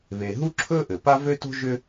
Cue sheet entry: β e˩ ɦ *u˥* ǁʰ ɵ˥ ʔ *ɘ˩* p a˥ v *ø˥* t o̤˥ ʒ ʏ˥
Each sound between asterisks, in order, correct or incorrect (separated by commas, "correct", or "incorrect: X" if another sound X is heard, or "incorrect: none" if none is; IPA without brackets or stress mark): correct, correct, correct